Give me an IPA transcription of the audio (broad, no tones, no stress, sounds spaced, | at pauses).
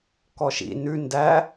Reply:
k ɔ ʃ ḭ n ʉ n d æ